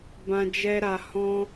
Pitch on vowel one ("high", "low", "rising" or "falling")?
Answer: high